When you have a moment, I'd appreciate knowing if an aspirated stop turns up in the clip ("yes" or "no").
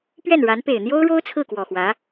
yes